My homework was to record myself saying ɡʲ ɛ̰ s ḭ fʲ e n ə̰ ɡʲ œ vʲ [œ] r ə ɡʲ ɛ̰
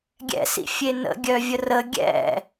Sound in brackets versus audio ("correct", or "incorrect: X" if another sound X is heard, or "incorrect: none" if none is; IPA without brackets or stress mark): incorrect: ə